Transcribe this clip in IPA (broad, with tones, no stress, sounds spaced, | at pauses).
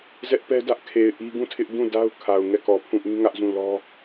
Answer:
z ɛ˦ ʔ p ɛ˦ d ä˦ ʔ kʰ e˨ ɪ̯ ʔ i˦ ɡ ũ˦˨ tʰ ɪ˦ ʔ d ũ˦˨ d a˦ ʊ̯ kʰ a˨ ʊ̯ ŋ ɛ˦˨ k ɔ˨ pʰ ũ˦˨ ʔ ĩ˦ ŋ ä˦ ʔ z ũ˦˨ l ɔ˦